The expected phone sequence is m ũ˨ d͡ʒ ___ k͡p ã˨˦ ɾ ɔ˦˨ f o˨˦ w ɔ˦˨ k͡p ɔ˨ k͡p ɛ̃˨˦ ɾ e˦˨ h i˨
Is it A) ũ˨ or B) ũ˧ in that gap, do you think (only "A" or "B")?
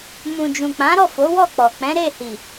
A